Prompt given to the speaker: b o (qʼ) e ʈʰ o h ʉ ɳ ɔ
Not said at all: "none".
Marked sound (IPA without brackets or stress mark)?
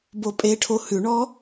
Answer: pʼ